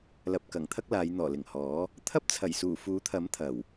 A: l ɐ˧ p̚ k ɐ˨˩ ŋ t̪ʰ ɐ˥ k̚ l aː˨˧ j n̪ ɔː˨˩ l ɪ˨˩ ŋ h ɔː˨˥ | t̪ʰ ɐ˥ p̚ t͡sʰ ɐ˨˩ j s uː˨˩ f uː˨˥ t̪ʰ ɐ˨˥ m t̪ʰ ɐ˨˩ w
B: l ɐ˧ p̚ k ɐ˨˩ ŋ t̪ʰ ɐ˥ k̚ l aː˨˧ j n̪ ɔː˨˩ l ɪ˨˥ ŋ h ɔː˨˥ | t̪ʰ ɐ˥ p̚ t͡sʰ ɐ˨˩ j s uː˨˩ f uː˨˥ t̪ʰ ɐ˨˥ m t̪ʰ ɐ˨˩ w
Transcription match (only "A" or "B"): A